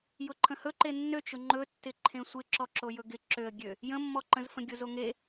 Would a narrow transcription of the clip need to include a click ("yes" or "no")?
yes